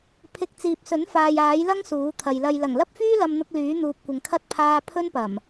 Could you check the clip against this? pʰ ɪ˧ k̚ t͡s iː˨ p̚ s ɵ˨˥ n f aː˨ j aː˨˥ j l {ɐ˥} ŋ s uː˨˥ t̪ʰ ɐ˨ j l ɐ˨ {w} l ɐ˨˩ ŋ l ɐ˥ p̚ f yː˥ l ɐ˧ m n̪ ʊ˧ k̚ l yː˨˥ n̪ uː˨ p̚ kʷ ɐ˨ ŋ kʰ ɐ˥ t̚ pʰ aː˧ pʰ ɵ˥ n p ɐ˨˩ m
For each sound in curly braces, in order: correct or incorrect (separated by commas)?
correct, incorrect